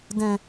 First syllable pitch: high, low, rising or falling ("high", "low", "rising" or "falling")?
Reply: low